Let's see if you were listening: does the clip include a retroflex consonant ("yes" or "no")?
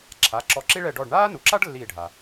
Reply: yes